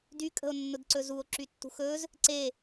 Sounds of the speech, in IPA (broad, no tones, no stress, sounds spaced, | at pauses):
d y kʼ ə̤ o̯ nː ʊ d ǀ ɵ z u o̯ ǁ y tː ṳ x ɵ z | ǀ e